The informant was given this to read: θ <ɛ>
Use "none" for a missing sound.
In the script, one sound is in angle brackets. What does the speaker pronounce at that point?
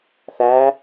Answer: æ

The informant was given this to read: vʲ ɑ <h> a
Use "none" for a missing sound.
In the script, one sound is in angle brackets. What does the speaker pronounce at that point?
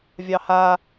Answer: h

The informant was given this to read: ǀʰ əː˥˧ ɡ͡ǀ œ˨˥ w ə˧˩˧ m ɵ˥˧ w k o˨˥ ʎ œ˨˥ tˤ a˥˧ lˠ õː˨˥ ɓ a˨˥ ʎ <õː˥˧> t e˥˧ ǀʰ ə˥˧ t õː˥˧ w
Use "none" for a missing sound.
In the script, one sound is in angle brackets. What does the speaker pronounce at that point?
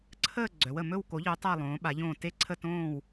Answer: õː˥˧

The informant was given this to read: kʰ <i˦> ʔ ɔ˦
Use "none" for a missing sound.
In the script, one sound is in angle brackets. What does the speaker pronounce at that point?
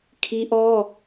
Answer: i˦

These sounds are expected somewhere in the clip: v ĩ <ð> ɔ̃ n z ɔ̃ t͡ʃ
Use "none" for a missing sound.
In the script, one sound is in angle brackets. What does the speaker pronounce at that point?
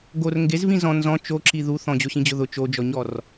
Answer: z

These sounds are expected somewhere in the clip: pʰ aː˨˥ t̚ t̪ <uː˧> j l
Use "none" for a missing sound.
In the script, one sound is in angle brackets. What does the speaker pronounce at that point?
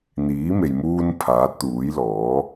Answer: uː˨˥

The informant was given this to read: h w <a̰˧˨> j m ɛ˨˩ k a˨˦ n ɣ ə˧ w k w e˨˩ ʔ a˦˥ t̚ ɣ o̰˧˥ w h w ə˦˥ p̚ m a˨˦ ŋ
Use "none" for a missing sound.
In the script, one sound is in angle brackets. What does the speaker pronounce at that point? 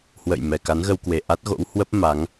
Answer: ə̰˧˨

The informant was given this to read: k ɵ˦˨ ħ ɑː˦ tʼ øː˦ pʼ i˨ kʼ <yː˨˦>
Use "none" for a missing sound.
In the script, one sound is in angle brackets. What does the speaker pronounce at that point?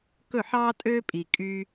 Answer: yː˧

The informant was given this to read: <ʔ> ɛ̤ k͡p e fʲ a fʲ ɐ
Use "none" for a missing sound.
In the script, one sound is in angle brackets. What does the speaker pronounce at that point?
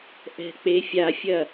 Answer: ʔ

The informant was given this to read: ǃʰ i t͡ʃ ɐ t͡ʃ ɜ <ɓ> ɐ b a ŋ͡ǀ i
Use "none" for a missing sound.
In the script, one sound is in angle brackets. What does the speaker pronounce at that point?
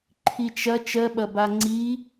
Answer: ɓ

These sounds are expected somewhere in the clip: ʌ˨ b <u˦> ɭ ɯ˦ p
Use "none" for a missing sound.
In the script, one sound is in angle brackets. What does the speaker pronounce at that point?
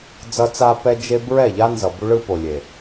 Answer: u˦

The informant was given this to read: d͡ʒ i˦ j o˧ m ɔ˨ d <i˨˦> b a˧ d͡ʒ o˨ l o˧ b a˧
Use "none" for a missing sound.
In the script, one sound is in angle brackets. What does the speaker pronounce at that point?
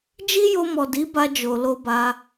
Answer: i˨˦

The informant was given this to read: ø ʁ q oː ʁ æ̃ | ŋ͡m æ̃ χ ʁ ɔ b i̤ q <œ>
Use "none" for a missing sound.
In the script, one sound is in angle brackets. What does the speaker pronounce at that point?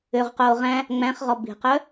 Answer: œ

